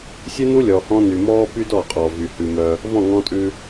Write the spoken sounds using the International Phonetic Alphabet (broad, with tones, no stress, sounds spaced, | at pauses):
sʲ ʉ˦ n u˦ lʲ ɔ˨ h ɔ̃˦ n y˨ m ɔː˦ p y˦ d ɔ˦˨ qʼ ɔ˨ v y˨ h ʉ˨ m œ˦ | v ɔ̃˦˨ ŋ ɔ̃˦ tʼ ʉ˦